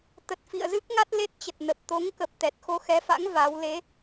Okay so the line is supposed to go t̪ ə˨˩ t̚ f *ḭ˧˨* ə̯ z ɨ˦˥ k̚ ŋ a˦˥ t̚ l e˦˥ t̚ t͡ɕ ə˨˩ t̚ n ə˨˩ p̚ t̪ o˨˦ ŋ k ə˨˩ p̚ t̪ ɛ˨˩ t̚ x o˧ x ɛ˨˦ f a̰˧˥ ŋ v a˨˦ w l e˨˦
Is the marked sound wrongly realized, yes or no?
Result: no